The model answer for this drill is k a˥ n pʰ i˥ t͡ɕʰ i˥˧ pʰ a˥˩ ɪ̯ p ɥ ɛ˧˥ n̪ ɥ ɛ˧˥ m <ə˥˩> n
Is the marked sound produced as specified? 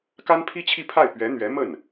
yes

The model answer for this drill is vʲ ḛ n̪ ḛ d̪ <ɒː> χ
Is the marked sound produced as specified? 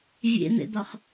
no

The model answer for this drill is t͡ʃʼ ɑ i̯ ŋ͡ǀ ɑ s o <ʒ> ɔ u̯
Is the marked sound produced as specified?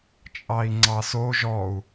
yes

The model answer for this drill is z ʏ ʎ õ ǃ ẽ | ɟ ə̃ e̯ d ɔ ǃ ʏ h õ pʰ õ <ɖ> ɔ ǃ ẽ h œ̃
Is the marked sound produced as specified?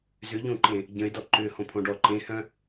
yes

